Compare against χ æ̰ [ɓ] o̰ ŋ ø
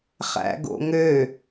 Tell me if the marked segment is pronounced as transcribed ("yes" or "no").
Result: no